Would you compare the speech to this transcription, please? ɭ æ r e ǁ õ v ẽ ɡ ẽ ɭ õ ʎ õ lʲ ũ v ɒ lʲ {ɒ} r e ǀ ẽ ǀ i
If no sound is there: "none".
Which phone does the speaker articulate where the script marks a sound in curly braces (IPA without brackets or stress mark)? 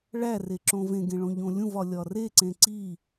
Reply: ɒ